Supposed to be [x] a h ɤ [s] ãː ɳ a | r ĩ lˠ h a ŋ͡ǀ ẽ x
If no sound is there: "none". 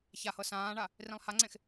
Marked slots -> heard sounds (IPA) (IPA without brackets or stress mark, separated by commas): ç, s